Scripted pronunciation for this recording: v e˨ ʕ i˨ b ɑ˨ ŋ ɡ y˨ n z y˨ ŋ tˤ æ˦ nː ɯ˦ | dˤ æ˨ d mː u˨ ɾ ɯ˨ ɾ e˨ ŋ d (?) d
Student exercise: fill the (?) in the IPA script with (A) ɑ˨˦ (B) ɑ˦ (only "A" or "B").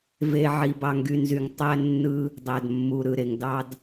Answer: B